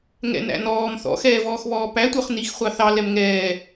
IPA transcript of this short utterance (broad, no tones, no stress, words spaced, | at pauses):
ŋɛ̰næ̰nɔːm θɔ̰xɛːvɔːxβɔː pætʷə˞χ nixχʷɑ θɑ lɛmŋɛː